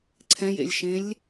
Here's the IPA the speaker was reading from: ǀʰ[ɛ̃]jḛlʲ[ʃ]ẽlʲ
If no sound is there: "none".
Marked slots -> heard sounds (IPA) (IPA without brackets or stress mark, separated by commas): ɛ̃, ʃ